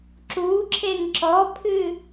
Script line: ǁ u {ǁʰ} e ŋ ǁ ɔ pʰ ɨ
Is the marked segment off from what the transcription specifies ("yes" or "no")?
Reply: no